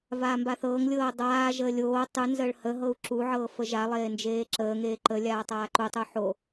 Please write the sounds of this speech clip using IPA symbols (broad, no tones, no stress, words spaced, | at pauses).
vaːmbaθɤːŋlʲɤː dˤaːʒəː lʲoː tˤʉ nzəːɭhəɦɤu̯ ǁuʕɤː fəʒalˠeː nd͡ʒeːǁəːŋeː ǃəlʲaː tˤaːǃutˤu ħo